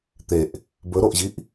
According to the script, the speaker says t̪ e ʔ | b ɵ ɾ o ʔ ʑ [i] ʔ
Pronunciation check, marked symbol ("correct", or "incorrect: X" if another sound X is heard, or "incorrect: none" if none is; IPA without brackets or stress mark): correct